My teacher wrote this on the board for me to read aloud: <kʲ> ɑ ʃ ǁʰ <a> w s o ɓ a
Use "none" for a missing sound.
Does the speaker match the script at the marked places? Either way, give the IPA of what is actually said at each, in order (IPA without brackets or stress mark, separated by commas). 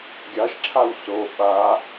ɡʲ, a